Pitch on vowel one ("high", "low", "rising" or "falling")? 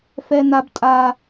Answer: high